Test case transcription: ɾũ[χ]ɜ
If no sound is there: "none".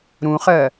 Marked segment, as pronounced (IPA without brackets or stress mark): χ